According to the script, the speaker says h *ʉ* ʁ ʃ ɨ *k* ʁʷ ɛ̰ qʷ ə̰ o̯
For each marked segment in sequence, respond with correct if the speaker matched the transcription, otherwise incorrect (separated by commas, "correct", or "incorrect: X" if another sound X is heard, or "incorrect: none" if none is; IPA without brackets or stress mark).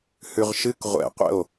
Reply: correct, correct